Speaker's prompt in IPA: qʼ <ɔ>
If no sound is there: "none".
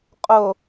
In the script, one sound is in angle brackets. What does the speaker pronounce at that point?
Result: o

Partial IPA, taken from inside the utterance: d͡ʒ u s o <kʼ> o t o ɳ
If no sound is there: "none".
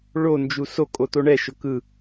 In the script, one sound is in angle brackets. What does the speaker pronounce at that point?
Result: kʼ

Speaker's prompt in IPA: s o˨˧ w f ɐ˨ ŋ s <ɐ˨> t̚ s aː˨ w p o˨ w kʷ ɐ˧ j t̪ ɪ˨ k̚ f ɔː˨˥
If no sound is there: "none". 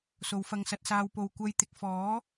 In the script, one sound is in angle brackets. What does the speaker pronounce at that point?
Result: ɐ˨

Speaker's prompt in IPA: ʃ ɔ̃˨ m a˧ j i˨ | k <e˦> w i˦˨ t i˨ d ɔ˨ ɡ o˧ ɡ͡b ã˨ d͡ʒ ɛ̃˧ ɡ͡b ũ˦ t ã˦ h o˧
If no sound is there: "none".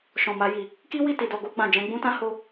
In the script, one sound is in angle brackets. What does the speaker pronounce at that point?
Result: i˦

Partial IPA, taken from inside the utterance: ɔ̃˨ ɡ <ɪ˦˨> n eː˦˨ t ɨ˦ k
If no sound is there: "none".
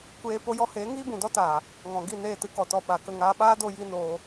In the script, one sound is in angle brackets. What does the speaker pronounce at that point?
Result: i˦˨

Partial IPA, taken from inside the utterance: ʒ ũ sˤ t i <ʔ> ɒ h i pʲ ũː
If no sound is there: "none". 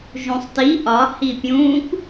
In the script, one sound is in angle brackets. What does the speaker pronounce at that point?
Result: ʔ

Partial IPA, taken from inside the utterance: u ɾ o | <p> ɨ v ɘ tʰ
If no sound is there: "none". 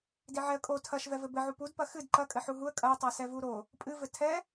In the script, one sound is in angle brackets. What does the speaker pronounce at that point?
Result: pʼ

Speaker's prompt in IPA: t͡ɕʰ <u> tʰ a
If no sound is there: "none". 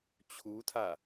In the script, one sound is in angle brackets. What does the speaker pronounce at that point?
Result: u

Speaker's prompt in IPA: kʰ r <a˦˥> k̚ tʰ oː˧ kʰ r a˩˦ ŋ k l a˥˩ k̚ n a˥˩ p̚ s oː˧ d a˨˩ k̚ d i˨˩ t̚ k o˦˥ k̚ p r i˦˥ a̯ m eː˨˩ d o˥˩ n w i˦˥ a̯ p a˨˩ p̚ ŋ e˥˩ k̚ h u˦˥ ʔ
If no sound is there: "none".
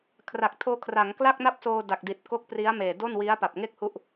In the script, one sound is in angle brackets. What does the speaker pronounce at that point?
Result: a˨˩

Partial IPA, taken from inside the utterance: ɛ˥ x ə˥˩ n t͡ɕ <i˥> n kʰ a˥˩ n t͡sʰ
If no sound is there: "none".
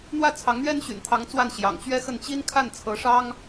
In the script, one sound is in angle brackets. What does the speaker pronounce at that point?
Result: i˥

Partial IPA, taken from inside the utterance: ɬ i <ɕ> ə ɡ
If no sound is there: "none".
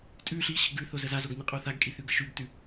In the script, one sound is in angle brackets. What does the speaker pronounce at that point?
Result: ɕ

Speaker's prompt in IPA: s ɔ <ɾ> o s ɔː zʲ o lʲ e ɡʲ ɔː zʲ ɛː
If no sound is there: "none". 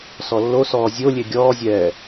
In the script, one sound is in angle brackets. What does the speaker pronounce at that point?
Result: lː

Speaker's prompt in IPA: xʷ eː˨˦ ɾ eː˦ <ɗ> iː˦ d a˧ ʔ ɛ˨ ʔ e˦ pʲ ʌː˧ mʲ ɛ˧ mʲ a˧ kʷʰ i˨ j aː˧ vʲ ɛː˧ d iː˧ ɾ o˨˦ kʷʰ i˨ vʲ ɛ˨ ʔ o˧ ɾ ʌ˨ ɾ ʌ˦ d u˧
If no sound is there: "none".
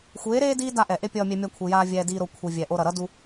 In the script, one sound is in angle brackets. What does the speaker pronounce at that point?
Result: d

